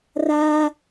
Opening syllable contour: high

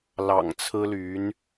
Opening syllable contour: low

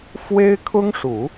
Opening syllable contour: high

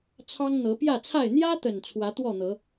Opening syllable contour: high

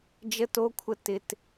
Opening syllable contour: high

